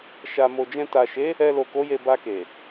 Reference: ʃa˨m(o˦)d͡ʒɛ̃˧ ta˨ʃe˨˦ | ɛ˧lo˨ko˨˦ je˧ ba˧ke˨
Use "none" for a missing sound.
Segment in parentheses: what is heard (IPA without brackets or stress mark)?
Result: o˨